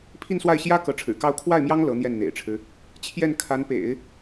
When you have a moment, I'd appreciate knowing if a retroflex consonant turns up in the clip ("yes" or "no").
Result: yes